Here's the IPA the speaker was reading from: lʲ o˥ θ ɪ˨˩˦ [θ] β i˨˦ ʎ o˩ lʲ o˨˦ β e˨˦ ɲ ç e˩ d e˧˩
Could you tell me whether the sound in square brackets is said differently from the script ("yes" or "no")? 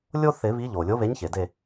yes